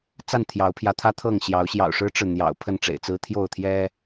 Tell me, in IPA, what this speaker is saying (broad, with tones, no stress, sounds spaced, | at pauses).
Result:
t͡s a˥˨ n t̪ʰ j ɑ˨˦ ʊ̯ pʰ j ä˨˦ t̪ʰ ä˦ t̪ʰ ɤ˥˨ ŋ ɕ j ɑ˨˦ ʊ̯ ɕ j ɑ̰˨˩ ʊ̯ ʂ ɻ̩˦ ʈ͡ʂ ɻ̩˨ n̪ j ɑ̰˨˩ ʊ̯ pʰ ə˥˨ n ʈ͡ʂ ḛ˨˩ ɪ̯ t͡s ɹ̩˦ t̪ʰ j o˥˨ ʊ̯ t̪ʰ j ɛ˦